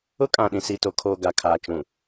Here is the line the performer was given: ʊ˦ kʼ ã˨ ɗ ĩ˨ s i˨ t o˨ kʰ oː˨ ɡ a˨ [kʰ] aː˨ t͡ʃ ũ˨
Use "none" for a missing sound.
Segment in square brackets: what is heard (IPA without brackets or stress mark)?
kʰ